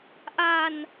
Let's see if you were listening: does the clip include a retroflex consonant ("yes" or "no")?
no